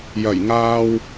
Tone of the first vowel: low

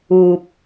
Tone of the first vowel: low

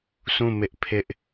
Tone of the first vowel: falling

